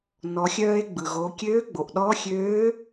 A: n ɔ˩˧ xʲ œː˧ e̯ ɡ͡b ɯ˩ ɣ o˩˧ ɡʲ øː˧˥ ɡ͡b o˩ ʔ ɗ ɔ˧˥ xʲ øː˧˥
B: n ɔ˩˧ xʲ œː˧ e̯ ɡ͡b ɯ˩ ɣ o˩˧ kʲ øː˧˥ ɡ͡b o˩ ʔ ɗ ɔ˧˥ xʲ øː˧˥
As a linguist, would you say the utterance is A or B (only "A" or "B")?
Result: B